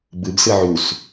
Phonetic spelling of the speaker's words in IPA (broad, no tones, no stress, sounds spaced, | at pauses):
b ɯ b s ɯ ʕ u s